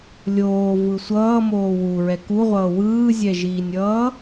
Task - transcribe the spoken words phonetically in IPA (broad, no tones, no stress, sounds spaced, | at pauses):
lʲ oː v ɯ sʷ ʌː m oː w u ɹ ɛ k u ʁʷ ʌː w ɯː zʲ ɛ ʒ iː nʲ ʌː